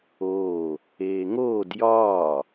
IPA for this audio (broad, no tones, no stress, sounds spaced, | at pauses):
oː | eː ŋ oː d j ɒː